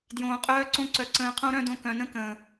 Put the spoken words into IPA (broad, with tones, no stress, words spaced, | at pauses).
djõː˨qʼœː˧ǀõ˧ǀœ˨ ǀə̃ː˧qʰõ˦ɾœ̃˦dõ˧ kœ̃˨nə̃˧kə̃ː˨